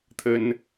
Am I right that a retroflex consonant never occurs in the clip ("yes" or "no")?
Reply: yes